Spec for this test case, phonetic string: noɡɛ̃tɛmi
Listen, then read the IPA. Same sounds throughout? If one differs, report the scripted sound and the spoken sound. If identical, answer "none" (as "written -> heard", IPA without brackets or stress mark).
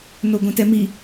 ɡ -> ɡʷ